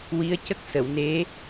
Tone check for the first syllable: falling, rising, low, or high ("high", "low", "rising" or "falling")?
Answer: rising